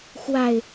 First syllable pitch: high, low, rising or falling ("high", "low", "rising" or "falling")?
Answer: low